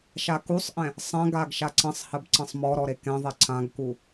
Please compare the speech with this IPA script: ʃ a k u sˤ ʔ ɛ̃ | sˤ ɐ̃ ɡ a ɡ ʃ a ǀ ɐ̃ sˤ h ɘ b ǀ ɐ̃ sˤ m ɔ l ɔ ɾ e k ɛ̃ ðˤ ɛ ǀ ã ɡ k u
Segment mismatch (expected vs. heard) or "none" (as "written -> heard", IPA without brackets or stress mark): l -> ɾ